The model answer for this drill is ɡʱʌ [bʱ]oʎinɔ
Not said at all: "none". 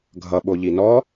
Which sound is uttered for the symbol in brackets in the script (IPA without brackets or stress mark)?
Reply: ɓ